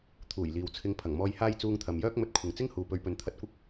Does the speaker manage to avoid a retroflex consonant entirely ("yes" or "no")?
yes